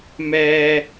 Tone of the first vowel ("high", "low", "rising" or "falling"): high